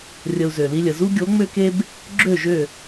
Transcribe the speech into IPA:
rʲ ə˧ u̯ z ø˨ l i˦ lʲ ə˨ z u˦ ɡʲ o˨˦ ŋ͡m ø˦ k e˦ b | ɡ͡ǁ ø˦˨ ʒ ø˦˨

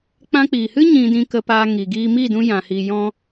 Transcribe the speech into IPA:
k͡p ã˧ k͡p iː˨ h ɨ˦ ɲ ĩ˧ d ĩ˧ k ə˧ p aː˧ ŋ i˨ ɡ iː˧ m i˦˨ d ũ˧ j ã˨ h i˨ j ɔ̃˧

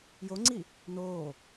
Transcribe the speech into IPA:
j o ŋ͡ǀ i | n oː

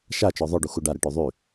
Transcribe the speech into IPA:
ʃ a t͡ʃ ɔ ðˤ œ ɖ u x u ɖ a ɾ ɛ ʈ ø ðˤ y

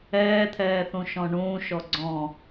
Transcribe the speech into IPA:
ɛː t̪ʰ ɛː θ ũ ʃ ɔ̃ ɳ ũː ʃ ɔ ɡ͡ǀ ɔ̃

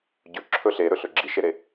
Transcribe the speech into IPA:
ɟ ɵ ǁʰ ɵ ɬ e ɾ ɵ ɬ ɵ ɡ͡ǁ i ʃ e ɾ e

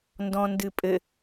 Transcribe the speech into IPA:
n d ɔ̃ n d ɨ pʼ ɘ

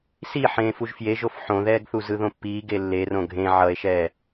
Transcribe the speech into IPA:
s i ħ ẽː f u ʒ f j e ʒ o f ħ õ ð ɛː ɡ θ u z ɯ ð õ pː iː ɡ e lː e r õ ɡʱ ẽ ʕ ʌ e̯ ʃ ɛː

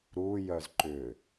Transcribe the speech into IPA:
ɾ u j œ z ǃ ʏ

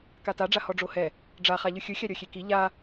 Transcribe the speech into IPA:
k a t a ɖ͡ʐ a h ɔ ɖ͡ʐ o h ɛ | ɖ͡ʐ a χ a ʎ ɯ xʲ ɯ xʲ a ɾʲ ɔ xʲ e k i ʎ a

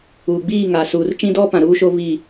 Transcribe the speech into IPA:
uː˨ ɡ͡b iː˦˨ ŋ a˨ s uː˨ r t͡ʃ ĩ˦ d ɔ˦ p ã˨ ɾ uː˦ ʃ o˦ β i˦˨

